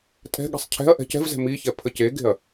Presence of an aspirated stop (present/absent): present